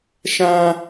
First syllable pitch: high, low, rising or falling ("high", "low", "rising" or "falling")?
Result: high